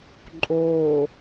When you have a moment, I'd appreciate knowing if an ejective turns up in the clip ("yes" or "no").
yes